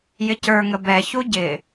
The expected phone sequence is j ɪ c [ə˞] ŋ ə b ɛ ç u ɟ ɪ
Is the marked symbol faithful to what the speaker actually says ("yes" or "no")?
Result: yes